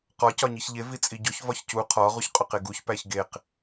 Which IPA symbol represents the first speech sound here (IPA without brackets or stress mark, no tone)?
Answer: q